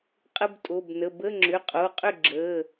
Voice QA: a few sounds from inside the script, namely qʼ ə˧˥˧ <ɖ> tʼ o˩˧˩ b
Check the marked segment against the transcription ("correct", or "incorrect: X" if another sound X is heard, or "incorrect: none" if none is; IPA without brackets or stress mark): incorrect: b